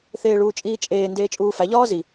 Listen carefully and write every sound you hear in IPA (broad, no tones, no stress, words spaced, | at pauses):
θeːɭuːt͡ʃʼiːt͡ʃʼeː ndeːt͡ʃʼuːfæ ʎɒːzi